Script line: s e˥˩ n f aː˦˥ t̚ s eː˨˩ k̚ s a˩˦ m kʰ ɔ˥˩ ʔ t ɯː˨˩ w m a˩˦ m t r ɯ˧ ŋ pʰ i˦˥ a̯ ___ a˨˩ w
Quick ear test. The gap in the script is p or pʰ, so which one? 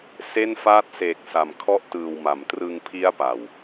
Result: p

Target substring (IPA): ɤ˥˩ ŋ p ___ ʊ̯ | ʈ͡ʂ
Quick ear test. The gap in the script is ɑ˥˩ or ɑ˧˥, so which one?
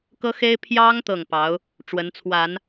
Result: ɑ˧˥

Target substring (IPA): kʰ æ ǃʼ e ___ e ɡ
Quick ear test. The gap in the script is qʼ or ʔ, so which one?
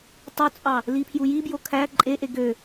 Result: ʔ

